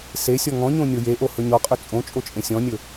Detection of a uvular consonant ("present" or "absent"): present